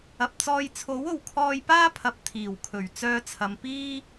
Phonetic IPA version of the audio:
ɐ˨p̚t͡sɔː˧jt͡sʰo˨˥wo˨w kʰɔː˧jpaː˥pʰɐ˨p̚ t̪ʰiː˨˩wkʰɵ˨˩ɥ t͡sœː˧t͡sʰɐ˨mpiː˥

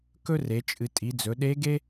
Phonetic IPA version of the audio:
kɵ˥re˩˧t͡ʃʼɨ˩˧ tʼi˩˧d͡zɵ˩˧ ɗe˧˥ɡe˥

